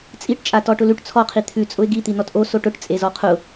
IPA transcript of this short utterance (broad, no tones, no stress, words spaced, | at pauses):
t͡sʼiʈt͡ʃʼatɔ ʈʊlʉʈ t͡sʰɔqʰi t̪ʰʉ t͡sʼʊɪ̯ɡit̪i nɔtʔo soʈʊʈ t͡sʼezɔqʰʊ